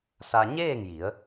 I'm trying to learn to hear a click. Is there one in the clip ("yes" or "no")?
no